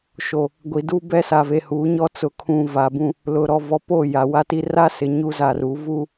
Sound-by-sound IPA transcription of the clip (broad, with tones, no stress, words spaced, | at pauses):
ʃo˨ | ɡʷi˨du˦ bɛ˦sa˨ve˨huː˨˦ ɲɔ˦t͡sʊ˨kʰũ˨ va˨bũ˦˨ | lʊ˨ɾɔ˨vɔ˨po˦˨ ja˨ wa˦ti˦ ra˦sɪ˨ ɲu˦ za˨ru˨˦ vu˦